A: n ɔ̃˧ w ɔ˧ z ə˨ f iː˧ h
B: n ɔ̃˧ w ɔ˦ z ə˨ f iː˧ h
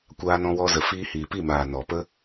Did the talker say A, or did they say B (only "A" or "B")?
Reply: A